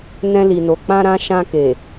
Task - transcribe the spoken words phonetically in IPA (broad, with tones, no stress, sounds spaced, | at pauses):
n ɛ̃˧ l i˨ n o˨ k͡p ã˧ ɾ ã˧ ʃ ã˧ k e˨